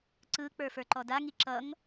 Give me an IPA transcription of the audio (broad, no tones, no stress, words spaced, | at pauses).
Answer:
ǀɯ k͡pə˞fə˞ǃɔda ŋiǁʌŋ